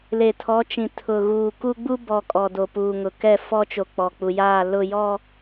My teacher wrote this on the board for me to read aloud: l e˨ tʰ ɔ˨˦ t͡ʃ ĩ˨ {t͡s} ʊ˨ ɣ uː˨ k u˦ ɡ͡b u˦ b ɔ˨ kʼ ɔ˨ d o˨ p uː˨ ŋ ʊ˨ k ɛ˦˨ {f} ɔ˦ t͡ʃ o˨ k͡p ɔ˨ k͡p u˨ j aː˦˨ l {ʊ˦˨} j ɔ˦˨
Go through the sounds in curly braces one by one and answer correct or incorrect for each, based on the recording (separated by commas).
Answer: incorrect, correct, correct